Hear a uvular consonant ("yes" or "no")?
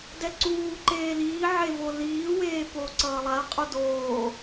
yes